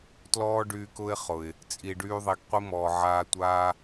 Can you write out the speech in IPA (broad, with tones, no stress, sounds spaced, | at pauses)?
t l ɔː˦ ɖ yː˧ k ʊ˦ ɪ̯ χ ʊ˨ ɪ̯ | t͡sʼ i˨ ɖ yː˧ ðˤ i˨ ɡ qʷ i˦ m ɔː˨ ʕ aː˧ tʷ aː˦